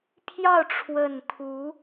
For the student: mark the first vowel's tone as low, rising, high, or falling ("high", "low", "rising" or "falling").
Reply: falling